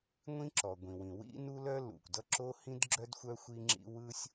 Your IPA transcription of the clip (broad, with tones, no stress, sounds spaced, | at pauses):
ŋʷ ĩ˥ ǁ ɔ˩ ɡʷ ĩ˩ w ĩ˩ w ḭ˥ n u˥ l œ˥ l ṵ˩ kʷ d ʌ˥ ǁ o˥ h ĩ˥ d ɡ͡ǁ œ˥ d xʷ œ˥ xʷ i˥ ŋ͡ǁ ḭ˥ w ɯ˥ sʲ